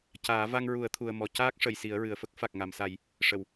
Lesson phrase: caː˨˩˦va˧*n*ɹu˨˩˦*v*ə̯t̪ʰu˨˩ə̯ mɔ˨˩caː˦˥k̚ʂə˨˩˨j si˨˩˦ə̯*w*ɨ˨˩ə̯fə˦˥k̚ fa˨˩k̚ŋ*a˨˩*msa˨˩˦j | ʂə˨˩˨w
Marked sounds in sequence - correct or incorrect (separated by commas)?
incorrect, incorrect, incorrect, correct